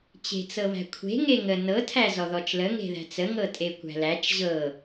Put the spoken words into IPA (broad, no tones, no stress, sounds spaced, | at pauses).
t͡ɕ e̤ t͡s ɤ β æ̤ kʷʰ e̤ ŋ e ŋ ə n ɤ tʰ æ z ɔ ð ɔ t͡ʃ l ə ŋ e̤ ð æ̤ t͡s ə ŋ ɤ tʼ e kʷ æ̤ l æ t͡ʃ ʑ ɤ